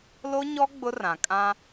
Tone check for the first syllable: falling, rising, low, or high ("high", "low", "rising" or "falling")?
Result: high